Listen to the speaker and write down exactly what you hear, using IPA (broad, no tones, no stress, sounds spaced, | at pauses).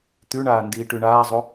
t̪ ʉ ɳ aː n d iː ʈ ʉ ɳ aː zˤ o